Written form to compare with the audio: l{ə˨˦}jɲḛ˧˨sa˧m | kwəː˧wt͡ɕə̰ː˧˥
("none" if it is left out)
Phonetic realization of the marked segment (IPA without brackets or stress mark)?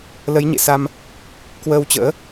ə˨˦